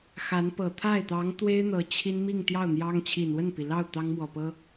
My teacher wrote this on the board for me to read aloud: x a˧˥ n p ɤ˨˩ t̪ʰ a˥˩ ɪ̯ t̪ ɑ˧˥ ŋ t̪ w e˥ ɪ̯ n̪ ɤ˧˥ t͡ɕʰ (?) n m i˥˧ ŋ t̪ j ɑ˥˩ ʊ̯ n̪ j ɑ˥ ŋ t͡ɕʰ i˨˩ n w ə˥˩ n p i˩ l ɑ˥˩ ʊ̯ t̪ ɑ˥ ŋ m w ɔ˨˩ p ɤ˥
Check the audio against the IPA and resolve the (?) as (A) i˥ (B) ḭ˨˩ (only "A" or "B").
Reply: A